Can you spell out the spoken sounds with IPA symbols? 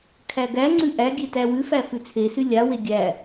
kʰ æ ɡ æ ŋ͡ǀ ʉ ʔ æ ɡʲ e t æ w ʉ f æ f ʉ t͡sʰ e s ʉ lʲ a w e ɡʲ æ

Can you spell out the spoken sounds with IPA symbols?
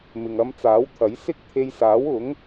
m ɪ˨ ŋ ɐ˧ m t͡s aː˨˥ w t̪ʰ ɐ˨˥ j s ɪ˥ k̚ t̪ʰ e˧ j s aː˨˥ w ʊ˨˥ ŋ

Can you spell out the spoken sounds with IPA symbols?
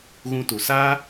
ɣ ũ˧ t u˨ s aː˦

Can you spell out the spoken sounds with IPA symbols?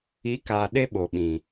i˨˦ k aː˨ ɗ e˦ ɓ o˨ ɓ ĩ˨

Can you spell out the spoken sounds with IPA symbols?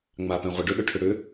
ŋ͡m a p ɛ̃ ʁʷ ə ɖ ʏ ɗ ʏ ʈʰ ʏ ɽ ʏ

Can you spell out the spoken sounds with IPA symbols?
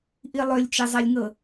ʔ i lˠ ø lʲ t͡ʃ e zˤ e lʲ ŋ ɤ

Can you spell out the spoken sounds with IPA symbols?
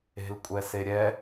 e̤ l kʷʼ ɛ s e ɾʲ ɛ

